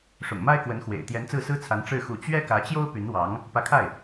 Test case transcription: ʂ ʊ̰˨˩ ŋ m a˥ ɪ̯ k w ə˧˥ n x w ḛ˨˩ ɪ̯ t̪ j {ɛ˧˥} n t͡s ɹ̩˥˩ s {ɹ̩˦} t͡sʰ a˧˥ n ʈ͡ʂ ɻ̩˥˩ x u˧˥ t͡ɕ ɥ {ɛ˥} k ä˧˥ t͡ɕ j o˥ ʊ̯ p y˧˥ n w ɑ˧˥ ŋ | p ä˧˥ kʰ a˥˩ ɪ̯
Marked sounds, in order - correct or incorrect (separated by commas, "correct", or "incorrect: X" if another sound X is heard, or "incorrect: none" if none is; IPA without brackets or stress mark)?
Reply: correct, incorrect: ɹ̩˥, correct